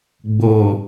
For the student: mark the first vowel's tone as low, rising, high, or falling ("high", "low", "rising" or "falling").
low